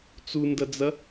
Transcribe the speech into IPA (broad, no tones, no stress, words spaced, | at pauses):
t͡sundɐd͡zɐ